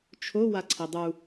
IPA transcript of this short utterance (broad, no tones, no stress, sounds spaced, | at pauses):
t͡ʃʰ o w a ǀʰ i dˤ u